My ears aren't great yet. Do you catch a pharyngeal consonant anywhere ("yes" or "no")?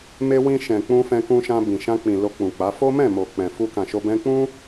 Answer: no